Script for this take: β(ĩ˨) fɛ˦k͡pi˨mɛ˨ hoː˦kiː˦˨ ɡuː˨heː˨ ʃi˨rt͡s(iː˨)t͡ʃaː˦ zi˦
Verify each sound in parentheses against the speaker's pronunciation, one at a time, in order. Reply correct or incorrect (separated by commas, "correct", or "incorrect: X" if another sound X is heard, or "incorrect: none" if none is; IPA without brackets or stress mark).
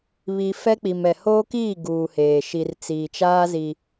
incorrect: i˨, correct